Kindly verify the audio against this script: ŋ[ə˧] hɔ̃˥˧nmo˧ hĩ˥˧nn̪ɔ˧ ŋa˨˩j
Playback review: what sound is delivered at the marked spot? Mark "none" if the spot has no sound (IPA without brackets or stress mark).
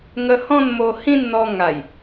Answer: ə˧